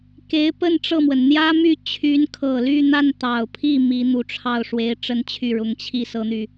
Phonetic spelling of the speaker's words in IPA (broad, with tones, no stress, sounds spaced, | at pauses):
k e˧˥ ɪ̯ p ə˥˧ n ʈ͡ʂ ɤ˥˩ m w ə˩ n n̪ j ä˥ m y˥˩ t͡ɕʰ y˧˥ n kʰ ɤ˨˩ l y˥˧ n̪ a˥˩ n t̪ ɑ˨˩ ʊ̯ pʰ i˥˩ m i˧˥ n̪ u˨˩ ʈ͡ʂʰ ɑ˥˩ ʊ̯ ʂ w e˧˥ ɪ̯ ʈ͡ʂ ə˥ n t͡ɕʰ y˥˩ ɻ ʊ˧˥ ŋ t͡ɕʰ i˥˩ s ɤ˥ n̪ y˨